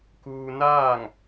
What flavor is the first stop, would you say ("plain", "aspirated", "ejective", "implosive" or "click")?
plain